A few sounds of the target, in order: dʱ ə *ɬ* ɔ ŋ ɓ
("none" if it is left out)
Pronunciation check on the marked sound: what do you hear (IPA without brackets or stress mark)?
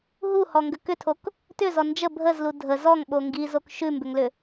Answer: z